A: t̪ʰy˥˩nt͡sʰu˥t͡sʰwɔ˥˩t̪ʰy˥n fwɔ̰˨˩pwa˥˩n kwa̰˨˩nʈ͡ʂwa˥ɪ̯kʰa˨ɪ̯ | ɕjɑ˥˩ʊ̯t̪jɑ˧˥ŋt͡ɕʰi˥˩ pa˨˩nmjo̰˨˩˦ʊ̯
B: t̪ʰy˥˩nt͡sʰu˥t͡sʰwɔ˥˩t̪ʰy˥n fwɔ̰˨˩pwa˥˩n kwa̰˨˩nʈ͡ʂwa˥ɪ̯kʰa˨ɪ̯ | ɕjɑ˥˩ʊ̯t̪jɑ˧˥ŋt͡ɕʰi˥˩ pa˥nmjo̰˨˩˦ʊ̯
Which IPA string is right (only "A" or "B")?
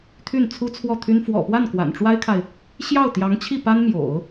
B